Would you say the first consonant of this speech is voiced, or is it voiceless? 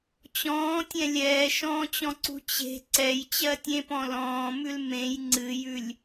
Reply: voiceless